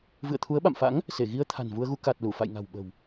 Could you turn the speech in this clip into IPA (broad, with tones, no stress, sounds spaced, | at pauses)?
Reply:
v ɨ̰˧˨ ə̯ t̪ʰ u˨˦ ə̯ ɓ a̰˧˨ m f a̰˧˥ ŋ | s e˧˩ ɣ i˧ ə̯ t̪ʰ a̤˨˩ n v u˧ ə̯ ɣ u˧ k a˨˩ t̚ l u˧˩ f a̰˧˨ j ŋ a̤˨˩ w ɓ ə̤˨˩ w